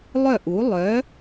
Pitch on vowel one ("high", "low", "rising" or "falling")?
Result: falling